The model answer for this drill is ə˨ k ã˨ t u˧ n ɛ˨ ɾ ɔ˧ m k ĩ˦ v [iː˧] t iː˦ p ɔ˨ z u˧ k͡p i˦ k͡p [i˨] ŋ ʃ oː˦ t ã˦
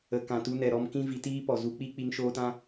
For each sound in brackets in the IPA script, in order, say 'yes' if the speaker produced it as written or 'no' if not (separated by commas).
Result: no, no